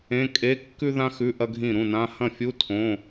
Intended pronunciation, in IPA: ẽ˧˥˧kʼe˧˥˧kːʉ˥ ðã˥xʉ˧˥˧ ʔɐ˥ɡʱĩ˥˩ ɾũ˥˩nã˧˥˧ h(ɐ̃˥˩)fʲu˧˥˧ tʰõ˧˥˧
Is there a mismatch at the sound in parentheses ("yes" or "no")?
no